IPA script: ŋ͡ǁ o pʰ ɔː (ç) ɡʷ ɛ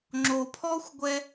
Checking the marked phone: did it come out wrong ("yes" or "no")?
yes